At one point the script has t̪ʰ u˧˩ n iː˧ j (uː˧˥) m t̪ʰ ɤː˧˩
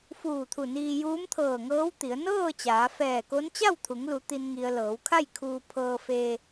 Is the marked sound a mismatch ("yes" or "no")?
no